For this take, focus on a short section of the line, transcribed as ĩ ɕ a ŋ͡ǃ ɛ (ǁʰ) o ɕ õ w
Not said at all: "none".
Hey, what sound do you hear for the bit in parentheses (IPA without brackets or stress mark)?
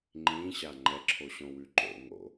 ǁʰ